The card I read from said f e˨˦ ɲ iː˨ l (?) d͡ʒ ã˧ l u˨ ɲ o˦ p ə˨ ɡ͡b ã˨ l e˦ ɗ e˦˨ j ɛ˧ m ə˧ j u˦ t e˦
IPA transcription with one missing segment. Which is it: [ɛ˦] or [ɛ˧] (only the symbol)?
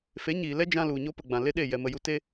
ɛ˦